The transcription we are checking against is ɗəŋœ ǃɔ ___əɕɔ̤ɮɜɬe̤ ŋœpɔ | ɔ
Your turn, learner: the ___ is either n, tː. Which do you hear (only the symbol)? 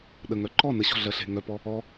n